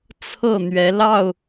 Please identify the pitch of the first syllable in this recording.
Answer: falling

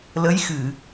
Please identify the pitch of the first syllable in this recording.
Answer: rising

